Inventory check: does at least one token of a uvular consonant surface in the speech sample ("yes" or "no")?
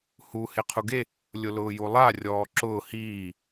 yes